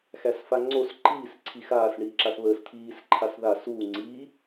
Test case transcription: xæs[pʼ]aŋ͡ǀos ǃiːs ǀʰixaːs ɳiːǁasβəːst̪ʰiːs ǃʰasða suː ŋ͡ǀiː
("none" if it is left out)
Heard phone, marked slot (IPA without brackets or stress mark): f